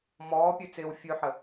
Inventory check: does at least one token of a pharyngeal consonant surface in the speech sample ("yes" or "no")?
yes